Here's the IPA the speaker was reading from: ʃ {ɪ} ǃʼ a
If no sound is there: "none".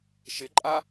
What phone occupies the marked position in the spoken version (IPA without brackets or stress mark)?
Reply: ɪ